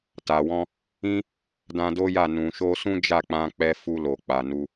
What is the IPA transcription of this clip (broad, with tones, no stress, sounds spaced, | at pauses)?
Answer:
t a˨ w ɔ̃˧ | ĩ˦ | d ã˧ d o˦ j a˦˨ n ũ˨ ʃ o˧ s ũ˦ d͡ʒ a˦˨ k͡p ã˧ k͡p ɛ˧ f u˧ l o˨ k͡p a˨ n u˧